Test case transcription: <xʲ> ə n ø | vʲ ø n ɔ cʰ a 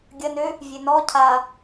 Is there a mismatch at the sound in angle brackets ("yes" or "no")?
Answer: yes